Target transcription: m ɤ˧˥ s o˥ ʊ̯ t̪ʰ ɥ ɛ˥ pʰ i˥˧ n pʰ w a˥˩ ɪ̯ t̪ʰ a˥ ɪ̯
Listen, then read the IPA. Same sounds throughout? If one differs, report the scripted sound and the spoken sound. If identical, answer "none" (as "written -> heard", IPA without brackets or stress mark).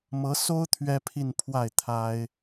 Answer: none